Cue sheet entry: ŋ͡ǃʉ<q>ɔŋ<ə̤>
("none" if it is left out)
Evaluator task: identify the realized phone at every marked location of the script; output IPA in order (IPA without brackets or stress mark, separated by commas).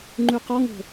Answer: q, ə̤